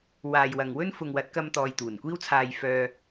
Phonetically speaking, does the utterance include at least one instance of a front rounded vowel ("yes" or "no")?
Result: yes